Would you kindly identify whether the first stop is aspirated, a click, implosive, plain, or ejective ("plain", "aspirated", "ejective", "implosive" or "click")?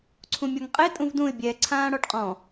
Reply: click